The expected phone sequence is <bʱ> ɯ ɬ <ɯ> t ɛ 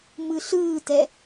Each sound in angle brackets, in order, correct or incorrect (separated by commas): incorrect, incorrect